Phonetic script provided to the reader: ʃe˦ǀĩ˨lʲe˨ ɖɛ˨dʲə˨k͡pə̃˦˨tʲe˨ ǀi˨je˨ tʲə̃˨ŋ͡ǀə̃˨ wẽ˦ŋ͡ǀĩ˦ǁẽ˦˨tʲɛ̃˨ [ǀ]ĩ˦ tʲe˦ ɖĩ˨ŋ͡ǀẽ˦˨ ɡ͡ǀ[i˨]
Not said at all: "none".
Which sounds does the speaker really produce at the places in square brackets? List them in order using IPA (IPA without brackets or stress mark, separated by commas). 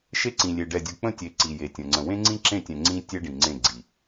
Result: ŋ͡ǀ, i˨